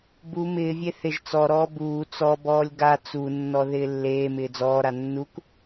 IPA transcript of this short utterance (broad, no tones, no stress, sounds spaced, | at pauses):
b u m ɪː vʲ e θ ɪ ʒ t͡s ɔ ɾ ɔː b uː t͡s ɔ b ɔː lʲ ɡ a t͡s u nː ɔ ð ɪː lː eː m ɪː d͡z ɔː ɾ a nː u k